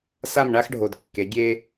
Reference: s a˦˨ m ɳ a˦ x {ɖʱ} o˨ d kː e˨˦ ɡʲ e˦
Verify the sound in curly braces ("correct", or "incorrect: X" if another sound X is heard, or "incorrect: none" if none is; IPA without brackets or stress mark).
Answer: correct